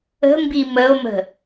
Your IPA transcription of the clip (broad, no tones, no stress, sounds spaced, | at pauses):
ə̤ m b i m ə o̯ m ə̤